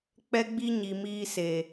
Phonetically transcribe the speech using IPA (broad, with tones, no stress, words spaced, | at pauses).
k͡pɛ˦ɡ͡bi˦ɲi˨ miː˦se˨